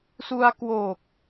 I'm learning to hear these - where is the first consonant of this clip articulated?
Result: tongue tip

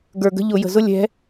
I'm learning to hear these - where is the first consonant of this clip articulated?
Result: velum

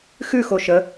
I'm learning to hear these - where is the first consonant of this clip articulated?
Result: velum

